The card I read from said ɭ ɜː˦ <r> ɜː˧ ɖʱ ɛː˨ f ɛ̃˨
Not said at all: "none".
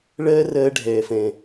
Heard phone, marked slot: r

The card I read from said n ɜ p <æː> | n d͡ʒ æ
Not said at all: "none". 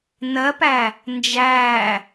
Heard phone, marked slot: æ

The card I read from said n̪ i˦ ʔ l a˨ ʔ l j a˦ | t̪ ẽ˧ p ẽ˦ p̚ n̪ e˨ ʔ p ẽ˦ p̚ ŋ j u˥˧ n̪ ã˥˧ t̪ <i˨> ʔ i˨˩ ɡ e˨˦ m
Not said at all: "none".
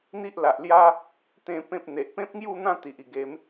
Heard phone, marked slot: i˨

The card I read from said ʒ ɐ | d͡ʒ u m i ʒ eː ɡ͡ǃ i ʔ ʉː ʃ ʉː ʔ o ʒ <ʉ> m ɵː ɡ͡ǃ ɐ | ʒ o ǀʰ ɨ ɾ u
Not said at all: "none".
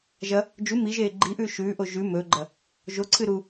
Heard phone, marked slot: ʉ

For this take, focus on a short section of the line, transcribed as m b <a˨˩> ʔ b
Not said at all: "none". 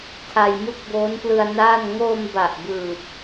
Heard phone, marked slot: a˨˩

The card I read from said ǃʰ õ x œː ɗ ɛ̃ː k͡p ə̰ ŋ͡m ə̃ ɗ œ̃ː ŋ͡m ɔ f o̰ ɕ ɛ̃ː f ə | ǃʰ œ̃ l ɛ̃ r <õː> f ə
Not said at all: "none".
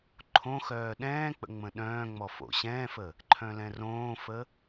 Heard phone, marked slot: õː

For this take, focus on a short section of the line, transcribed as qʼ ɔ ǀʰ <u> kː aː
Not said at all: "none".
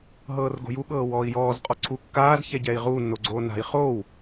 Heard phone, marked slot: u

